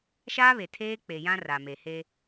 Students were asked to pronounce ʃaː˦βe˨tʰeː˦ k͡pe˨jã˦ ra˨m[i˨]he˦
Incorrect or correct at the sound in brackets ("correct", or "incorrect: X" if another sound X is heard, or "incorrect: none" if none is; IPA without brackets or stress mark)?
incorrect: e˨